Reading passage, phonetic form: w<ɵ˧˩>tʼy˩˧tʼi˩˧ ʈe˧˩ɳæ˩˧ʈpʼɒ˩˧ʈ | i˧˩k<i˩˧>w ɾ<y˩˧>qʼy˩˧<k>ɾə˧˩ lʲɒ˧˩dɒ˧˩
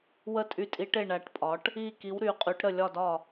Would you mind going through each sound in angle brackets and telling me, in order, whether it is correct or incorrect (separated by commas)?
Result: incorrect, correct, correct, incorrect